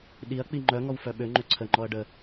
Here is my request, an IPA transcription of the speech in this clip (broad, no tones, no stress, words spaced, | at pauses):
ɗiɐ̯k͡pi ŋ͡ǃœŋɔw fœɓøŋ͡ǃø ǀʰəŋ͡ǃɔɐ̯ ɖə